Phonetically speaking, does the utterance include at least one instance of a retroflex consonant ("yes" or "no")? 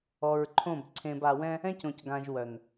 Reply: no